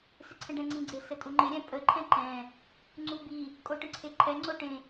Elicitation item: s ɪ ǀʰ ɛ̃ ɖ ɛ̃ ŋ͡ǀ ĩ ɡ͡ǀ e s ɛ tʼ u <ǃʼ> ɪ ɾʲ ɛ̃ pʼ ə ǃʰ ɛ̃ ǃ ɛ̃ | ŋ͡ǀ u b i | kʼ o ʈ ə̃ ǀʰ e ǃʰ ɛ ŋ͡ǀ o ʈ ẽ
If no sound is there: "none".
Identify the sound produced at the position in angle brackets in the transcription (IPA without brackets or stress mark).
ŋ͡ǃ